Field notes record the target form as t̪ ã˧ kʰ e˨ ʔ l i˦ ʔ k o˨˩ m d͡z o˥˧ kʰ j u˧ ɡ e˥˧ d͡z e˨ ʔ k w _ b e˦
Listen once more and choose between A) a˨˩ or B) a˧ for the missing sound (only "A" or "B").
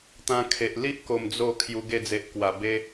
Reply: A